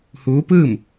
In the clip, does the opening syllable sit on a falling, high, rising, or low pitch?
rising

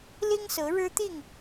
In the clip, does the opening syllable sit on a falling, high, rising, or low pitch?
high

